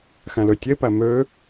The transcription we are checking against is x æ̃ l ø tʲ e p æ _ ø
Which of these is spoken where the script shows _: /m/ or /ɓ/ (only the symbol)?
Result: m